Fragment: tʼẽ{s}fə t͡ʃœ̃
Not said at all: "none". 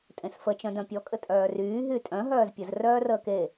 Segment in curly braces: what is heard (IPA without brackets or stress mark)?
s